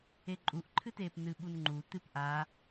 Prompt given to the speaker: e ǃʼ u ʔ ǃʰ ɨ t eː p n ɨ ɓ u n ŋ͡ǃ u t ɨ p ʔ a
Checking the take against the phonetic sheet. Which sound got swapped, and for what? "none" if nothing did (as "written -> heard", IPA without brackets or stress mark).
none